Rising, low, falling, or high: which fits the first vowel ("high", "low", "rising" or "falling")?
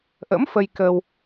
rising